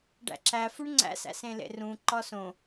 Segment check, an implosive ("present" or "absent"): absent